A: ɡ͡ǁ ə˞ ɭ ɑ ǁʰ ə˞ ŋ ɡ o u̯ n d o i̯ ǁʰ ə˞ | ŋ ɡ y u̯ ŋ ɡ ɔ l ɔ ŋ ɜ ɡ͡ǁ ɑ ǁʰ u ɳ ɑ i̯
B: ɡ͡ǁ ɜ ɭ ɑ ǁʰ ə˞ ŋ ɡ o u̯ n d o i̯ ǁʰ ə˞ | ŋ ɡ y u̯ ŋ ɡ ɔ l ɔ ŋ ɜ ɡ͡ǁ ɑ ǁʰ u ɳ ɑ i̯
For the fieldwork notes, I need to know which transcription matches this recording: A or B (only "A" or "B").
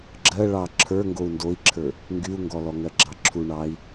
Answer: B